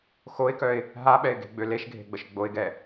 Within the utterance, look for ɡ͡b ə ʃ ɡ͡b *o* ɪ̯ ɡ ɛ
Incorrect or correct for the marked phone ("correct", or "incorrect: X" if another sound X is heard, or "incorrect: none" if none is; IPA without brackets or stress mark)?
correct